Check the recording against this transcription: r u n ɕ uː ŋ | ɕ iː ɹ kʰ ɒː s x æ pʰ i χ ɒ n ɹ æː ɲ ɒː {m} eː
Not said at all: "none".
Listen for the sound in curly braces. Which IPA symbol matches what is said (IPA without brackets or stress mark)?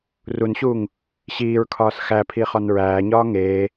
ŋ